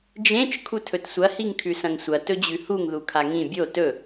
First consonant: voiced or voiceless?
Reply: voiced